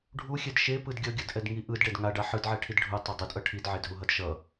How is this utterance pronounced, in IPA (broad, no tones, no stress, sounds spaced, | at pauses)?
ɖʱ u xʲ ɛ d ʃ e p ɯ d ɡʲ ʌ ɡʲ ʌ d ʔ ɛ d ŋ i ʔ ɯ d ɖ ɛ d ŋ a ɖ a ħ ɯ d ʕ ɛ ʈʰ i d ɖʱ u tˤ o dˤ ɯ d ʔ ʌ ʈʰ i d ʕ e d ɦ u ɦ ʌ d ʃ ʌ